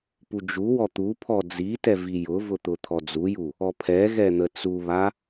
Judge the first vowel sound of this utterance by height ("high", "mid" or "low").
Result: high